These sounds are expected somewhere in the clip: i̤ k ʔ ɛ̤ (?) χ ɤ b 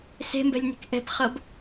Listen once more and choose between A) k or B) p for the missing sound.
B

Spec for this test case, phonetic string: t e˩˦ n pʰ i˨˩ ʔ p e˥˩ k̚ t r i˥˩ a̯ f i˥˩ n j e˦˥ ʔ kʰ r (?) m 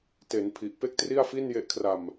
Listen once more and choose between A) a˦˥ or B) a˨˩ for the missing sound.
B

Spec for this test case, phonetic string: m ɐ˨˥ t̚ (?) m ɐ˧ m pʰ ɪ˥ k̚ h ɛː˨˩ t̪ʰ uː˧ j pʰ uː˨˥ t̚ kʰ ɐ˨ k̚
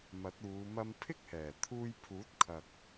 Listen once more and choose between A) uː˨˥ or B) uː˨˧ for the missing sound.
B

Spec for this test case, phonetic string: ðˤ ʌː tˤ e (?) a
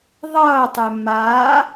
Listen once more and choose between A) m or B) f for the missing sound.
A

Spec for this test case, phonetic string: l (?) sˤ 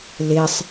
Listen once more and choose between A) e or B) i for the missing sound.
A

